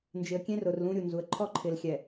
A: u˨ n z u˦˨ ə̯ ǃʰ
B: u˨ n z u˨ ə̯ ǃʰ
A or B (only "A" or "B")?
B